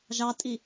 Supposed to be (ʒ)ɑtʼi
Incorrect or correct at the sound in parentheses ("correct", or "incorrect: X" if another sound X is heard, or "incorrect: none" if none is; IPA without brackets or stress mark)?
correct